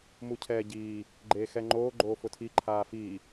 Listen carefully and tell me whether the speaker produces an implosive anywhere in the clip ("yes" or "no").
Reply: no